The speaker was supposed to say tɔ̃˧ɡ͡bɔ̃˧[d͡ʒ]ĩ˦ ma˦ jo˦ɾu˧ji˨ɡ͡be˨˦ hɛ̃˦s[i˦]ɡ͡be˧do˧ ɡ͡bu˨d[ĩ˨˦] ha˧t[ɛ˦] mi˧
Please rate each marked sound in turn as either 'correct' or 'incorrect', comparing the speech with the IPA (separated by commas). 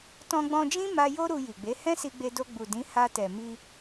correct, incorrect, correct, incorrect